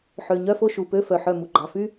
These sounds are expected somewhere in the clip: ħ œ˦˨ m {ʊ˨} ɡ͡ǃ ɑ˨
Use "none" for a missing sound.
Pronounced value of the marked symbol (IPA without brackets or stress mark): u˨